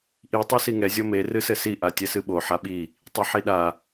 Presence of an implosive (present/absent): present